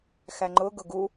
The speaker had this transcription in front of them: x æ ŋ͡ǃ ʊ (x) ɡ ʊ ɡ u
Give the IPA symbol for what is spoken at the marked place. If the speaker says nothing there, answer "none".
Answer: none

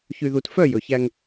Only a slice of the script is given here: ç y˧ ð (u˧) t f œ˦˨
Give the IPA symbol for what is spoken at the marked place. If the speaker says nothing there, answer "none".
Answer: u˧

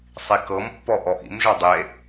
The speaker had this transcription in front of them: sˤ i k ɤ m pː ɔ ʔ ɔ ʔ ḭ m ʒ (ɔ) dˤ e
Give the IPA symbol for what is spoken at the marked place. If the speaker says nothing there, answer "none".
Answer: ɔ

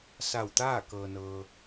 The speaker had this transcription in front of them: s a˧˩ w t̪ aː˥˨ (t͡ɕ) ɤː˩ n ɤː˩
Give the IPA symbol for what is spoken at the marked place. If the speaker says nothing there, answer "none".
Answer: k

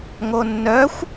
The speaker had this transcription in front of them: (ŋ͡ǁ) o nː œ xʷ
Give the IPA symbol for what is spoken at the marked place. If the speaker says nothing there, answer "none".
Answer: ŋ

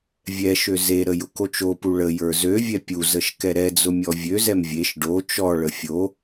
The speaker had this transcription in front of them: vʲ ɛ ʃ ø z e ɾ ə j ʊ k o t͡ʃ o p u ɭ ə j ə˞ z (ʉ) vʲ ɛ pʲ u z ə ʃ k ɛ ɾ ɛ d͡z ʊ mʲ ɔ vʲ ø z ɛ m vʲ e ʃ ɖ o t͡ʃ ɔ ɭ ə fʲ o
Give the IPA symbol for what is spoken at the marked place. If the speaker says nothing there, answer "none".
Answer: ø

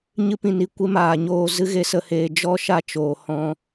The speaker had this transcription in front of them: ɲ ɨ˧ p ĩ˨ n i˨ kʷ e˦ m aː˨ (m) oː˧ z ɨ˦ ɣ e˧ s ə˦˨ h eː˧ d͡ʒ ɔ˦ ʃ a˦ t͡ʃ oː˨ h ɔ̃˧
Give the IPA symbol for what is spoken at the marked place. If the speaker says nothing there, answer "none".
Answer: ɲ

